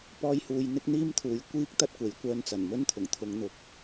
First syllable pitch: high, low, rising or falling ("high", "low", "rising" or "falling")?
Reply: high